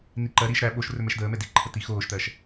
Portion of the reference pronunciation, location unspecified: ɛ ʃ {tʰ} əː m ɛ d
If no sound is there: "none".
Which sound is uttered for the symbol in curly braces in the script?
d̪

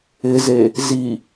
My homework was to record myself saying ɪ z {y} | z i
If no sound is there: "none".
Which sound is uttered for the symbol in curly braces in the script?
e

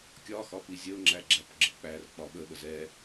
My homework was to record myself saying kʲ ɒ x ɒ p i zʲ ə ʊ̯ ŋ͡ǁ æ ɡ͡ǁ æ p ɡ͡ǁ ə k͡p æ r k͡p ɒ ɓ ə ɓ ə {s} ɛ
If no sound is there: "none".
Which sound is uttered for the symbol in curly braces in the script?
z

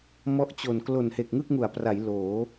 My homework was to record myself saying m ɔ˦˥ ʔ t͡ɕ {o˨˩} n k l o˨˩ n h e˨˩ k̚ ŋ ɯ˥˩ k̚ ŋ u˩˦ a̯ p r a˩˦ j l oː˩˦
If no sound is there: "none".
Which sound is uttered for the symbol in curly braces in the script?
o˨˩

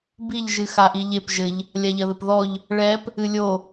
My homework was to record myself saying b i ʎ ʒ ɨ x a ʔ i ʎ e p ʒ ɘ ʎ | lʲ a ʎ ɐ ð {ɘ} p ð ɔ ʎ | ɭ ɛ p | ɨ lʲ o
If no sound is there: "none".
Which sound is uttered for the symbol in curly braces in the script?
ɘ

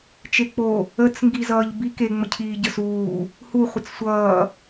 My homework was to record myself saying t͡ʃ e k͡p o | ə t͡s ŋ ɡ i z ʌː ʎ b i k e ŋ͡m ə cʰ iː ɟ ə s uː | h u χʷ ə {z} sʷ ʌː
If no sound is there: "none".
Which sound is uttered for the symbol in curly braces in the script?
t͡s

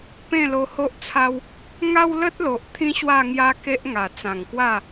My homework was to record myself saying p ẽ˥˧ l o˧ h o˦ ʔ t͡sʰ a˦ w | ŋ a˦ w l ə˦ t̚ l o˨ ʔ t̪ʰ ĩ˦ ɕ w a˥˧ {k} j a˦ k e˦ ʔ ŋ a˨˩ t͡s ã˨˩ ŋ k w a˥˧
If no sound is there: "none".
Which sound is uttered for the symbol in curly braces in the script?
ŋ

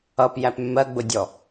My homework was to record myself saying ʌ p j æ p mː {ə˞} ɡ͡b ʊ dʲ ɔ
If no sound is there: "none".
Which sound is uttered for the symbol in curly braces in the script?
ɜ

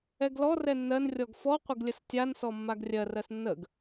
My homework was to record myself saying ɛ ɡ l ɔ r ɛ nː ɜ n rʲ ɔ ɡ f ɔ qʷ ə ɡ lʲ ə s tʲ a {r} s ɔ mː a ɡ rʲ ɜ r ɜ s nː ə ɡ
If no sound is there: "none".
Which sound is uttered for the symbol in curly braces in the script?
n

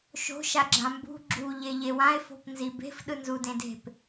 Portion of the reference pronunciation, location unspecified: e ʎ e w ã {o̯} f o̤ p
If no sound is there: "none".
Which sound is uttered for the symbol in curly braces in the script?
e̯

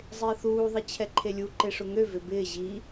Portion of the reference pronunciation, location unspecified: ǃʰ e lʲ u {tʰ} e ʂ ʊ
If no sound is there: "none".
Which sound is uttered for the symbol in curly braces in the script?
ǃ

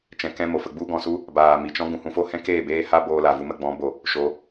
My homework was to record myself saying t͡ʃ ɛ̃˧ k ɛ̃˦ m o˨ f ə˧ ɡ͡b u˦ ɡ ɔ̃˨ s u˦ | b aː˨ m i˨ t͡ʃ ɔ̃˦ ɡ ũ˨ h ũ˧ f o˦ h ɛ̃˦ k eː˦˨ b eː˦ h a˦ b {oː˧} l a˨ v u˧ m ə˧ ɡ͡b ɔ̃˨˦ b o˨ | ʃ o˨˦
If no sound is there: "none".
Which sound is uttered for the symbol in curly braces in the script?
oː˧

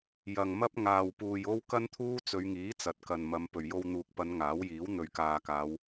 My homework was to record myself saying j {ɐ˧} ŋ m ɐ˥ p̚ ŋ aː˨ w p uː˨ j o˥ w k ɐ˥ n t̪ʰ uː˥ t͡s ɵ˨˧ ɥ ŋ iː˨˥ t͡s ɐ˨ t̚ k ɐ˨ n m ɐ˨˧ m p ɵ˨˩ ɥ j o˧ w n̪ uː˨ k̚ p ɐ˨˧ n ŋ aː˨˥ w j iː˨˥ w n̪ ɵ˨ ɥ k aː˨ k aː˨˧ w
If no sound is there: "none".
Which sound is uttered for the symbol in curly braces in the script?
ɐ˨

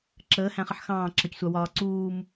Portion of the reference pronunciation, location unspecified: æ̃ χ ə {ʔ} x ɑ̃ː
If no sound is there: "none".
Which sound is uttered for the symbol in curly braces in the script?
ħ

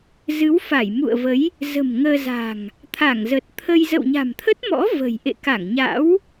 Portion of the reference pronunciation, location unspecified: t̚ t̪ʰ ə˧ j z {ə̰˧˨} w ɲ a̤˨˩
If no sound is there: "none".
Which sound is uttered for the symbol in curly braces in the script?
ə̰˧˨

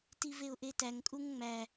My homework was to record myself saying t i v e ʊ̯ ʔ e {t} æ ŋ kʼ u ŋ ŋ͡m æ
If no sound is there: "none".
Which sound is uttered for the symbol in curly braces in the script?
t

